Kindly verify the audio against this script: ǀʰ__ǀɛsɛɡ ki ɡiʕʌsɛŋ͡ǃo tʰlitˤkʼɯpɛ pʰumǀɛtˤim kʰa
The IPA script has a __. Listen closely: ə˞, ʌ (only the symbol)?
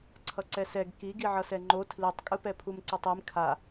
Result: ʌ